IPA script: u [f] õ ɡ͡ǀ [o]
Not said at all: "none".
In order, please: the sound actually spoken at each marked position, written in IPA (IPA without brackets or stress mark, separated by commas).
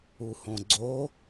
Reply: h, o